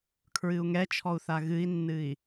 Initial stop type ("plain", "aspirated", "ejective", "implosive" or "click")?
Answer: aspirated